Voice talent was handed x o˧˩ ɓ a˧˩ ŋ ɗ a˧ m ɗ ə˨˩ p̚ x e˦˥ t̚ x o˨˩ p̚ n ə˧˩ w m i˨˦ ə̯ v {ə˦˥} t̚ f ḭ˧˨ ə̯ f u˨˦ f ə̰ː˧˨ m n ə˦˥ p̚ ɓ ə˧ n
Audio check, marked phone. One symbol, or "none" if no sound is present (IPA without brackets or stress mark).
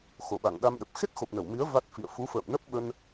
a˦˥